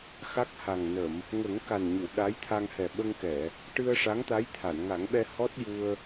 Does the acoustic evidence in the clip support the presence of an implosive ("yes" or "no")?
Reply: yes